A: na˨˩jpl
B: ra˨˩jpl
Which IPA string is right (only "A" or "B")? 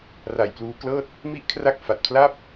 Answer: B